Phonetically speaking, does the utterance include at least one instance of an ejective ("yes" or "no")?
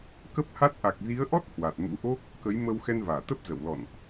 no